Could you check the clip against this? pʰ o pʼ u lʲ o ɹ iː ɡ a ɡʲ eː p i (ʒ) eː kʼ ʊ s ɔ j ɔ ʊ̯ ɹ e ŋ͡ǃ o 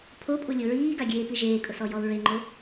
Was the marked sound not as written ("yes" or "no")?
no